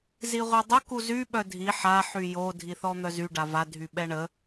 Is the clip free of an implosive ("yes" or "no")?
no